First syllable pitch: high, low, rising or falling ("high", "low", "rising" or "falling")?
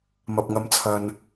low